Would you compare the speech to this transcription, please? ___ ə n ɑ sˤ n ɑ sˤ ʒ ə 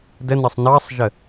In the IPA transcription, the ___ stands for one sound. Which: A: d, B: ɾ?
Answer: A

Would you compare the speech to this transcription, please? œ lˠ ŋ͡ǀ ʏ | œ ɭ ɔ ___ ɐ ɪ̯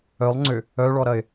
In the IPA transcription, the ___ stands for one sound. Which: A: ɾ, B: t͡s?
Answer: A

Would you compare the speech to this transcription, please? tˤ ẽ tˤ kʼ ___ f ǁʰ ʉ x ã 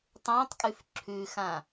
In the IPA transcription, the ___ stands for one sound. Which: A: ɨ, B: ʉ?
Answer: B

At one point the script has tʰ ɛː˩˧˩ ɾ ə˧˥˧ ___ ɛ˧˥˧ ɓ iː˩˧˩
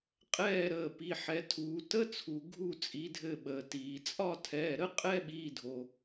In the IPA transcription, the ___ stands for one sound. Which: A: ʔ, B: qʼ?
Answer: B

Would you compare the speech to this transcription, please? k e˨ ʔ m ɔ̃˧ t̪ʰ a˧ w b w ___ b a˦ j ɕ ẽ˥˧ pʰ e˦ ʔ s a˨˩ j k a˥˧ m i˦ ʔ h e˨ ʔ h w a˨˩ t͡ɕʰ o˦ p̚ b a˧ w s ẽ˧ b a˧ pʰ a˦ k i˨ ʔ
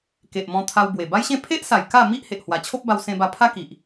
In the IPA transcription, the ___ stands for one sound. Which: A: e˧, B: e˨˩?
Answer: B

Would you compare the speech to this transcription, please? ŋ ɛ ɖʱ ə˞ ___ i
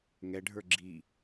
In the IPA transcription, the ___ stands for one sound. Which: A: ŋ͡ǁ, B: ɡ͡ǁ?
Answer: B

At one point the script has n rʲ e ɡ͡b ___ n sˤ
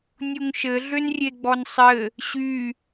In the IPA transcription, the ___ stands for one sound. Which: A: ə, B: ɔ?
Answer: B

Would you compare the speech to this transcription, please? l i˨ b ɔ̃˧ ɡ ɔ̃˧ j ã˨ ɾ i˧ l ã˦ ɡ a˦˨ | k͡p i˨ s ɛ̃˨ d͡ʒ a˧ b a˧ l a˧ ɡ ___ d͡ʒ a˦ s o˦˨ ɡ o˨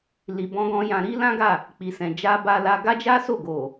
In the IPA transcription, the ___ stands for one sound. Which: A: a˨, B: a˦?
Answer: B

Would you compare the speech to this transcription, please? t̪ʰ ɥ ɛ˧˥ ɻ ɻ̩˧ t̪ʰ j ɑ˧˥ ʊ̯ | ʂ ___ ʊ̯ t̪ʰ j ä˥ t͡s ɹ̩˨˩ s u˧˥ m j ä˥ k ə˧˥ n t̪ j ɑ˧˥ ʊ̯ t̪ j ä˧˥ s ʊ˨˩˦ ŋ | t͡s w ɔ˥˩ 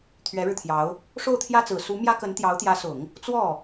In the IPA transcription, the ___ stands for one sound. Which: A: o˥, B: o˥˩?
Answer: B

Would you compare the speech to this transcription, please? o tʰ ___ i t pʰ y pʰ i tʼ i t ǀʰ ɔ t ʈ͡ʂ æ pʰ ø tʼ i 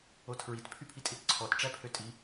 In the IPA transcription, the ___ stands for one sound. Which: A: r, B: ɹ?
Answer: B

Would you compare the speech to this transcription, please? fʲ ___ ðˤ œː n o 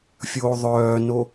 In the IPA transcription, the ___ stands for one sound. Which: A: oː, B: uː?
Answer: A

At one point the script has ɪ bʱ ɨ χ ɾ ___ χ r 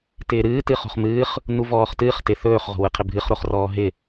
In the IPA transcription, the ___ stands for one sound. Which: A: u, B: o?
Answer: B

